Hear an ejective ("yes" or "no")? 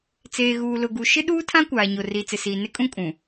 yes